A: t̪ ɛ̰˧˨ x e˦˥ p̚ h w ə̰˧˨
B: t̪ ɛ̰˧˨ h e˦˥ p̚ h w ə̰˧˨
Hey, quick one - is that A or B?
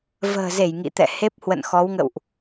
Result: B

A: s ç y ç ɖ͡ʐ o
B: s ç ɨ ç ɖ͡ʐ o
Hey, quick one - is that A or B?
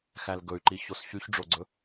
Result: A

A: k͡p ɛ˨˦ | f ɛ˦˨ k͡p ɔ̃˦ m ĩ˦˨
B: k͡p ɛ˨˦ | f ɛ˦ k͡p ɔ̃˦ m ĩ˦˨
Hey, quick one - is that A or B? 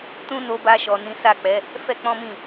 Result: B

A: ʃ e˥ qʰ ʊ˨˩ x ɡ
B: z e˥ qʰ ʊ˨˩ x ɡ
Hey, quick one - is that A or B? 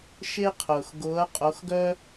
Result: A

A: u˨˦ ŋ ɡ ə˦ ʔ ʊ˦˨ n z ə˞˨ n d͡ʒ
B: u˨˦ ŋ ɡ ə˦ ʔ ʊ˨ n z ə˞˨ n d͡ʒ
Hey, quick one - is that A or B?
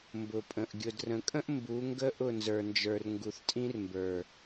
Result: A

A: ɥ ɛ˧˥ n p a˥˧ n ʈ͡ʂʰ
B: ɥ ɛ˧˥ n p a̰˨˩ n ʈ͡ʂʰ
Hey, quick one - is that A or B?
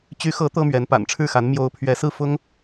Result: B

